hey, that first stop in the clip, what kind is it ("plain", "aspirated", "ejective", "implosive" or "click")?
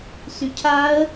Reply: aspirated